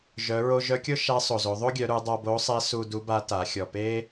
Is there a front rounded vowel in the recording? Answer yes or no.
yes